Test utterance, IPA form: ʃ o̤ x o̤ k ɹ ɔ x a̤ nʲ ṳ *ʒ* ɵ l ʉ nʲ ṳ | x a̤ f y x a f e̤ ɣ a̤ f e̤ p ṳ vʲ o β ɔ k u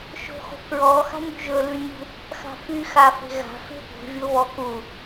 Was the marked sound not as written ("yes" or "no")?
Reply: no